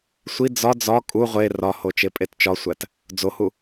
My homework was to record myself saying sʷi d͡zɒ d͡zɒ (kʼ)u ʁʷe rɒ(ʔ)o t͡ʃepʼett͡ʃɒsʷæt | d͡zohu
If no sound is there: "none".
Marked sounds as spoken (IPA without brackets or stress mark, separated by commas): kʼ, h